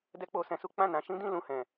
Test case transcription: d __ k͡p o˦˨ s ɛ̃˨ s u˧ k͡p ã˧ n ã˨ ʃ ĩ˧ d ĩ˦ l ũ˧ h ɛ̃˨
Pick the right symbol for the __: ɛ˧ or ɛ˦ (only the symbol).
ɛ˦